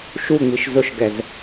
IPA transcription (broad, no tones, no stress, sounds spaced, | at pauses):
ʃ u ŋ͡m i ʃ z ʊ ʃ ɡ ɛ z